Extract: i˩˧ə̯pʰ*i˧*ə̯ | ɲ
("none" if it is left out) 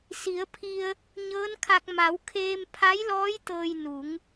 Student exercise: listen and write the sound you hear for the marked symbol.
i˧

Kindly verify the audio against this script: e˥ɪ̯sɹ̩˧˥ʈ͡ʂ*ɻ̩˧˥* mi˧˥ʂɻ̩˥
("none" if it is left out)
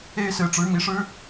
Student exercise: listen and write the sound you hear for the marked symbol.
ɻ̩˧˥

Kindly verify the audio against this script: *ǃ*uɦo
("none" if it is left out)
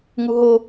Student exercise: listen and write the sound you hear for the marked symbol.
ŋ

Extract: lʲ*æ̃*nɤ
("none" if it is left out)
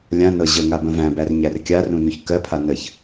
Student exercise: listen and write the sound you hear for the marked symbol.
ã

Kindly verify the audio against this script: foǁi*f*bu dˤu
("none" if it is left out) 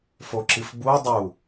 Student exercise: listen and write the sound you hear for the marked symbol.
f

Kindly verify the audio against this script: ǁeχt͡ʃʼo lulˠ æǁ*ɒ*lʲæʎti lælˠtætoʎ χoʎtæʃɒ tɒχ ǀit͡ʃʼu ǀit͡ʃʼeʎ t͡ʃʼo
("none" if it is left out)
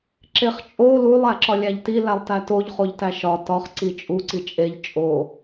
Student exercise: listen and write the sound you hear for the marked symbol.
ɒ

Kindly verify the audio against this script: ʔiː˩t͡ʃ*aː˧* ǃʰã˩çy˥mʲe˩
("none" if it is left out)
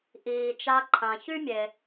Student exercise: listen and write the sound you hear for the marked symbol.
a˧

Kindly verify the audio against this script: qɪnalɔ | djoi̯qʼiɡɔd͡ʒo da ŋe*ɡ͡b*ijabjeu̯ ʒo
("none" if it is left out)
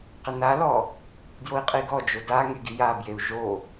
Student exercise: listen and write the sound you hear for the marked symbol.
ɡ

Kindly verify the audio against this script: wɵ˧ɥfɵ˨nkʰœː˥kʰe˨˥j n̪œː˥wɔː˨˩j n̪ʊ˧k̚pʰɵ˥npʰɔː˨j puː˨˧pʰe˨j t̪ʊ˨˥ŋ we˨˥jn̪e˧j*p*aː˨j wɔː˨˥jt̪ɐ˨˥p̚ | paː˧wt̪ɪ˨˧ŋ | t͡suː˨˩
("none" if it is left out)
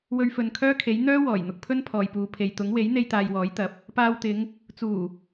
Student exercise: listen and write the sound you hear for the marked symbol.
t̪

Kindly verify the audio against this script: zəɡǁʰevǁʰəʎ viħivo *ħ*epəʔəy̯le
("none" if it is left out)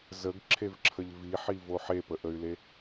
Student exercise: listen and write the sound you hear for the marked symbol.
ħ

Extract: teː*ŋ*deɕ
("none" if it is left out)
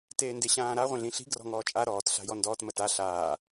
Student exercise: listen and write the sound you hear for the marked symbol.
n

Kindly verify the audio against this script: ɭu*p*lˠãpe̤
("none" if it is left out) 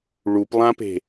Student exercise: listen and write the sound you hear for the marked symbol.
p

